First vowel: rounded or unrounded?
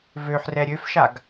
rounded